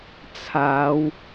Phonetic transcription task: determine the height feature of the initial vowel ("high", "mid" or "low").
low